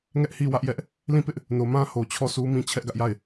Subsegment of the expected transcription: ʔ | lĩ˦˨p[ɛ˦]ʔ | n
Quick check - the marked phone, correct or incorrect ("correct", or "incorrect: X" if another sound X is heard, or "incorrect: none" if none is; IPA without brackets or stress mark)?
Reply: incorrect: ɪ˦